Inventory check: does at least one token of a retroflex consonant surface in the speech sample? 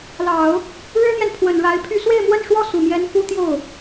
yes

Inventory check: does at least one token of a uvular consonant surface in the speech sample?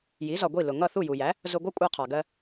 yes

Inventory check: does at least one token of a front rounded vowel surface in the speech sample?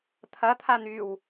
yes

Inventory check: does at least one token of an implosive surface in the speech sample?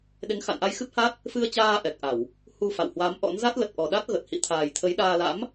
yes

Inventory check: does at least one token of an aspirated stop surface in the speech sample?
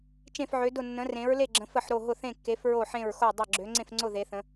no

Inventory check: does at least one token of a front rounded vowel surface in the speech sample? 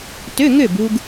yes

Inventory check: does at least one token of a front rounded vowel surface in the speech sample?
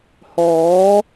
no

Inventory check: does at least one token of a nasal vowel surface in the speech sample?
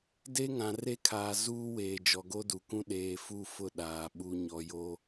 yes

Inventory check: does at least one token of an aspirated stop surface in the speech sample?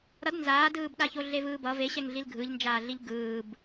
no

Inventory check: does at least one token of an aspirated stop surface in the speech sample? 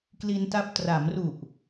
no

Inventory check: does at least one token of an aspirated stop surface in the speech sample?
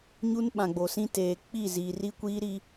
no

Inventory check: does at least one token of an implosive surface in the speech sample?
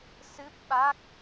yes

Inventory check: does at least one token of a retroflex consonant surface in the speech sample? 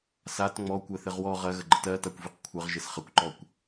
no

